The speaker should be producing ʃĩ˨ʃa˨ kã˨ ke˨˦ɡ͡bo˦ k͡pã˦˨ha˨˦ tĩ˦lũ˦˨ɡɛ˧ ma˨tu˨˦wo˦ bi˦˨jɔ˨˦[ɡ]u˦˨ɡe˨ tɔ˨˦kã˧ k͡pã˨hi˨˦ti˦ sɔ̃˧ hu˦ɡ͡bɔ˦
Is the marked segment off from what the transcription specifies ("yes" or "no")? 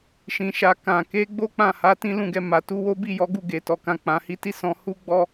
no